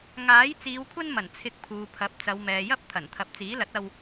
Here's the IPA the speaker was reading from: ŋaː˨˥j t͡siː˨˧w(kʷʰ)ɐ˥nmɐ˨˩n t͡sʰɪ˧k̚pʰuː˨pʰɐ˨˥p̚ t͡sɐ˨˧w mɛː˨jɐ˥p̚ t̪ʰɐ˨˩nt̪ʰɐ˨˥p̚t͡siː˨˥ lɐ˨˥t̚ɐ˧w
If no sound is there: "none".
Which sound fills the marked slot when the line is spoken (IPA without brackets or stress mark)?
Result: kʷʰ